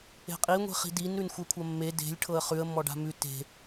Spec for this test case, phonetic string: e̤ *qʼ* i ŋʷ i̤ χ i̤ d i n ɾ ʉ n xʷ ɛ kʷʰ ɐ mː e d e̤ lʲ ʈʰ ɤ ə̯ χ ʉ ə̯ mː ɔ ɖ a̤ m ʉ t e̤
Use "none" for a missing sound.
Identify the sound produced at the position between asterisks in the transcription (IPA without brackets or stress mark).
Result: qʼ